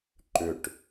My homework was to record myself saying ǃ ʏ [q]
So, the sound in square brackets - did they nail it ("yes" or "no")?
no